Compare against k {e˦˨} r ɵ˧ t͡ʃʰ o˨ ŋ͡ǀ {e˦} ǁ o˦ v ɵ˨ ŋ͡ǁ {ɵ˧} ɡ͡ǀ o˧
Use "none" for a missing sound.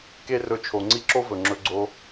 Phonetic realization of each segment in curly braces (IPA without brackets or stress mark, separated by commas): e˦, i˦, ɵ˧